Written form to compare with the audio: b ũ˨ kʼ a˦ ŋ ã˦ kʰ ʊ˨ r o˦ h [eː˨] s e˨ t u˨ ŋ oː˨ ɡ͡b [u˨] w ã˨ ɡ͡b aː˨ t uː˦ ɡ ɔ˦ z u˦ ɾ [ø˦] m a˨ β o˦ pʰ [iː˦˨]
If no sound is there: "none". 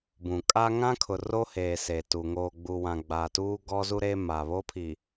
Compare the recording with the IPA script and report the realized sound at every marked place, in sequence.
eː˨, u˨, e˦, iː˨

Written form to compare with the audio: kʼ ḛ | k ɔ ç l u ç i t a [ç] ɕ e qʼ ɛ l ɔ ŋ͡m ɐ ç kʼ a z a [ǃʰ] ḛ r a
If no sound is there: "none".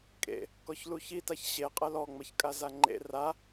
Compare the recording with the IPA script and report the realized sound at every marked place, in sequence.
ç, ŋ͡ǃ

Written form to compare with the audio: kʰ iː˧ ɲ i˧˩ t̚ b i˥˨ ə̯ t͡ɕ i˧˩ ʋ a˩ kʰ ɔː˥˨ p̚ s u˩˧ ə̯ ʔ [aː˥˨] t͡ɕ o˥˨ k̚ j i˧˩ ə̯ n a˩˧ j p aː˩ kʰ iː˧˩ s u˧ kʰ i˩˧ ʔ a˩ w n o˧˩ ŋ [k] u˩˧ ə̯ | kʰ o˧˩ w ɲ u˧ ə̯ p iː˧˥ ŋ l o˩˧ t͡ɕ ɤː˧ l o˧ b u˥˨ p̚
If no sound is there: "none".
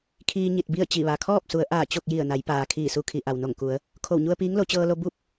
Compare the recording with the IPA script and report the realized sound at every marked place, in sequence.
aː˧˩, k

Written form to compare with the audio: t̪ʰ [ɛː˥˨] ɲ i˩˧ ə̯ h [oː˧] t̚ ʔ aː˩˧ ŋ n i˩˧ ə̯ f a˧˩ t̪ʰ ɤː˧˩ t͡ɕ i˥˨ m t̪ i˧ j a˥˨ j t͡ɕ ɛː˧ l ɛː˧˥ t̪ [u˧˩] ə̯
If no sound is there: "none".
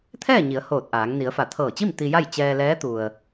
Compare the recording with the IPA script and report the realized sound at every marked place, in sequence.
ɛː˥˨, oː˧˩, u˩

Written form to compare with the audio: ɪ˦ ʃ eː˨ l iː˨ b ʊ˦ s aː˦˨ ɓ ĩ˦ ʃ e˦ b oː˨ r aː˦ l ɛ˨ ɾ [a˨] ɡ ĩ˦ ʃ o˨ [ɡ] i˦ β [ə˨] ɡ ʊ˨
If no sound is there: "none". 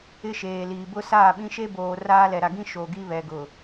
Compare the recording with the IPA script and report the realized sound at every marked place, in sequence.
a˨, ɡ, ɛ˨

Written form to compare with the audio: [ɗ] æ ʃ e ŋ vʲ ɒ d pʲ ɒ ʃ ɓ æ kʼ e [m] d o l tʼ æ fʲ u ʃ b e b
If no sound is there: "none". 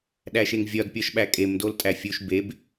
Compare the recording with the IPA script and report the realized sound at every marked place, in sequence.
ɗ, m

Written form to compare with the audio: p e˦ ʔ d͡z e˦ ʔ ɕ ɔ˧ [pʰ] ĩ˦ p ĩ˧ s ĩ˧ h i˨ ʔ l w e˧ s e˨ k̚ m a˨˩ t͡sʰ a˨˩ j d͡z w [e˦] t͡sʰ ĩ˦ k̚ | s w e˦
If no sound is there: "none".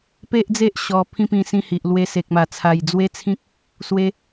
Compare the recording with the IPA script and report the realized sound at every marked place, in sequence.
pʰ, e˦

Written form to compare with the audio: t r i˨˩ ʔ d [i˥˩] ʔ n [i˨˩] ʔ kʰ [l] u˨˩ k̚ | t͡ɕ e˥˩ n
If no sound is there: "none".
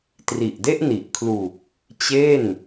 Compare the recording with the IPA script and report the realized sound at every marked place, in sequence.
e˥˩, i˨˩, l

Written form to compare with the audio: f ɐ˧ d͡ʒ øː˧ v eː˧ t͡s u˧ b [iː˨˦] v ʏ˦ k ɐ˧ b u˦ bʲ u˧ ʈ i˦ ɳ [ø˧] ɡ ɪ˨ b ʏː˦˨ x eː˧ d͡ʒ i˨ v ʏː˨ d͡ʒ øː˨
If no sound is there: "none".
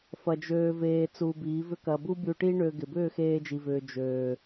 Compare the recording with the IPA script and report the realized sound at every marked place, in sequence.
iː˨˦, ø˧

